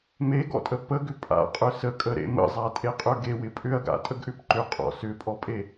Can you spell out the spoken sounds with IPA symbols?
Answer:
m e ɡ ɔ̰ tʼ ə p ə ɡ ʏ pʼ a̰ qʼ ʏ s ə kʼ ə ɾ ḛ m ə̰ zˤ a tʼ e qʼ ø ɡ e w ɪ pʼ ʏ ɐ̯ ɡ a̰ tʼ ə ɡ ʔ ʏ p ǃ ʏ qʼ ɔ̰ s ʏ pʼ ɔ pʼ e

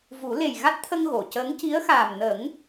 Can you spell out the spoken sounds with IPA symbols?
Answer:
v u˨˩˦ l e˨˩ j ɣ a˦˥ t̚ t̪ʰ ə˧ ŋ ɣ o˨˩˨ c əː˧˥ ŋ c i˧˥ ə̯ x aː˨˩ m n ə˨˩˦ ŋ

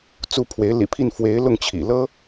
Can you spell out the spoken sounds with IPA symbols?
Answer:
t͡s u˥˩ pʰ w e˧˥ ɪ̯ l ḭ˨˩ pʰ i˥˩ n f w e˧˥ ɪ̯ l ʊ˥˩ ŋ t͡ɕʰ ḭ˨˩ l ɤ˥

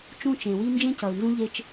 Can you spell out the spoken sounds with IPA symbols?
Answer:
t͡ʃ ũ˦˨ t͡ʃ ẽ˨ w i˦ n d͡ʒ ẽ˦ c ʌ˨ u̯ n z ũ˦ ʎ e˦ t͡ʃ

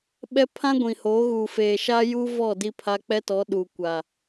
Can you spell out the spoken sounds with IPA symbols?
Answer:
ɓ ɛ˦ pʰ ã˦ ɡʷ ĩ˨ h oː˨˦ ɣ uː˨ f eː˨ ʃ a˦ j uː˦ v ɔ˦˨ d i˦ pʰ a˦ k͡p ɛ˦ t ɔ˨˦ ɗ uː˨ kʷ a˨

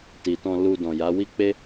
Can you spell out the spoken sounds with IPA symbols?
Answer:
t i˨ t ɔ̃˧ l u˧ d ɔ̃˨ j a˨˦ w i˦ k͡p e˦

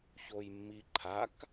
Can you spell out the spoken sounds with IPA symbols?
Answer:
ç o j mː i ǃʰ a k

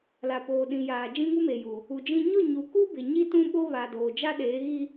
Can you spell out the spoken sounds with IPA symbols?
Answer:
l a˨ p oː˨ ɗ ĩ˨ j aː˨ d͡ʒ ĩ˦ ŋ u˦ m e˨ j u˨ | u˨ d͡ʒ ĩ˦ ɲ ʊ˦˨ ɲ u˨ k u˦ b ɪ˨ ɲ i˦ t ũ˦ ɓ o˦ β a˨ d oː˨ d͡ʒ a˦ ɗ eː˨˦ ɣ i˦

